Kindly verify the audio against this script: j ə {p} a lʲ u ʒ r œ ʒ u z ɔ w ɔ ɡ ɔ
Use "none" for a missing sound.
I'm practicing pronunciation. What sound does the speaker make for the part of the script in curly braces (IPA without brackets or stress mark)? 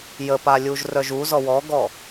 p